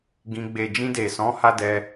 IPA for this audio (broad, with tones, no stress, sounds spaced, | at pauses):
ɡ ĩ˧ ɡ͡b e˨ d͡ʒ ĩ˧ d e˨ s ɔ̃˨˦ h a˦ d ɛ˧